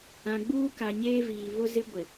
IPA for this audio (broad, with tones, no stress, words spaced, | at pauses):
ã˨ɡ͡buː˦ka˨ ɲeː˦viː˨ βʊ˦zɪ˦ɡʷɪ˨